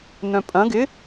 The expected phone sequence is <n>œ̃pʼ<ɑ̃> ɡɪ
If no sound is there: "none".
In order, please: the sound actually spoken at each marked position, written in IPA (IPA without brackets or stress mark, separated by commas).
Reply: n, ɐ̃